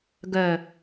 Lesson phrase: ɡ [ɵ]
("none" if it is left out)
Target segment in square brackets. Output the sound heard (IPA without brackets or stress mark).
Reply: œ